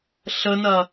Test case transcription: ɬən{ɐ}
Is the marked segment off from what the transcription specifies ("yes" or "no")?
no